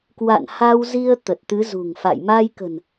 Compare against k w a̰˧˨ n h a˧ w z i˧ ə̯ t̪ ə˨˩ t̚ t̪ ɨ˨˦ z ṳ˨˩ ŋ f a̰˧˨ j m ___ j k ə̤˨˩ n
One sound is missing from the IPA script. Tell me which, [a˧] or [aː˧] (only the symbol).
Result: a˧